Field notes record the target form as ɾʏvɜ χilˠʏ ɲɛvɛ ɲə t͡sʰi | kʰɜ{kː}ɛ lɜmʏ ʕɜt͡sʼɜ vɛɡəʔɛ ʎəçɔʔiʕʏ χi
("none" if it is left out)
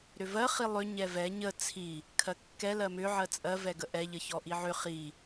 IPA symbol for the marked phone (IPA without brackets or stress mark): kː